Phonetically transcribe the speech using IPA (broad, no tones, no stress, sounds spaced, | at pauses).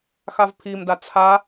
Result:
x a v pʰ i m d a t͡sʰ a